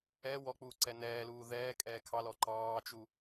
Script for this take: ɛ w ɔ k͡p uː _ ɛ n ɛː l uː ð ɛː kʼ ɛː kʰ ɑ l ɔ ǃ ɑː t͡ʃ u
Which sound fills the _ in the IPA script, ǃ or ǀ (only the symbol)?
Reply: ǀ